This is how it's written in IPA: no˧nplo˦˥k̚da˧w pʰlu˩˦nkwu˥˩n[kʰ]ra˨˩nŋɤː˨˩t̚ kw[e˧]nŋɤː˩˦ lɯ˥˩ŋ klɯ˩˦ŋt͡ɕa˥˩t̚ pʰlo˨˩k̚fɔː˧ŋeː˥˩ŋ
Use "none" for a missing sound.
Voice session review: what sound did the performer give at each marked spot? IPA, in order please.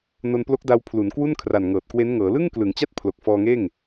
kʰ, e˦˥

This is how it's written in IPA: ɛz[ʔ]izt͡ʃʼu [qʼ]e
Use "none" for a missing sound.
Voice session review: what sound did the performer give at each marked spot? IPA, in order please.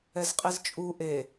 qʼ, ʔ

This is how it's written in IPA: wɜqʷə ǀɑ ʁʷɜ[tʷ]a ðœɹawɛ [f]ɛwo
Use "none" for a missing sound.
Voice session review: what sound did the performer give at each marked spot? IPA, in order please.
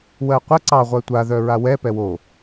tʷ, p

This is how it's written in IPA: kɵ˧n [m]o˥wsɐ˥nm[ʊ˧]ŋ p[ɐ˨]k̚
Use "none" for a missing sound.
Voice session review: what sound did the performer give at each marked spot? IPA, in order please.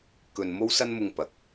m, ʊ˧, ɐ˨

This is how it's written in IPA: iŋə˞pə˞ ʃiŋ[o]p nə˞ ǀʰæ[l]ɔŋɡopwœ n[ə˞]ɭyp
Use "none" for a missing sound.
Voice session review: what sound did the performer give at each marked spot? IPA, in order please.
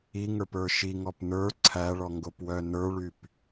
ɔ, ɭ, ə˞

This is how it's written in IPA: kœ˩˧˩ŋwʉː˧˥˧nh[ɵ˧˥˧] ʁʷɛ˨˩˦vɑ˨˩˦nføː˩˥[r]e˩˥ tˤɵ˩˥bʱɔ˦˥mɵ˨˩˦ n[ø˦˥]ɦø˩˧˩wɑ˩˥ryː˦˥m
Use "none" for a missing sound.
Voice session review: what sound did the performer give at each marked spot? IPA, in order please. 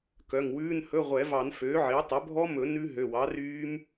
ɵ˧˥˧, ʕ, ʉ˦˥

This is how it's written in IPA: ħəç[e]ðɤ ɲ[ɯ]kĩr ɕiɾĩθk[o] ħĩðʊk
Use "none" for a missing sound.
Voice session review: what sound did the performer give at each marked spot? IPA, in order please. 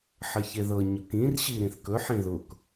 e, ʊ, ɵ

